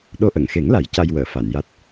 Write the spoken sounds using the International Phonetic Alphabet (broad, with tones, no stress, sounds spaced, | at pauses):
ɗ o˧ ʔ ə˨˩˨ ŋ x e˨˩˦ ŋ l a˨˩˦ j c a˧ j w əː˨˩˨ f a˨˩˨ n j a˦˥ t̚